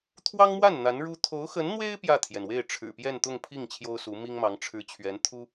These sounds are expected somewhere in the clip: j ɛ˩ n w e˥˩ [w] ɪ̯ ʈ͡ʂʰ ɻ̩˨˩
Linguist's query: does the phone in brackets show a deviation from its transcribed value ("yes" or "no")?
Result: yes